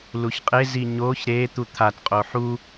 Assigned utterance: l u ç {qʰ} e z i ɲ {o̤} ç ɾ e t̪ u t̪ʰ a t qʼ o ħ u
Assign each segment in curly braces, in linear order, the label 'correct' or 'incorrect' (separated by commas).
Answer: incorrect, incorrect